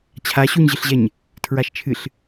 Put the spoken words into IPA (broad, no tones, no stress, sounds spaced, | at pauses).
t͡ɕʰ a ɕ u ɲ ʑ ɨ ɬ ʑ ɛ ɲ | tʰ ɹ a ʃ t͡ʃʰ ɨ ɬ